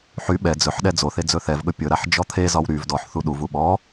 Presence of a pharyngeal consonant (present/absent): present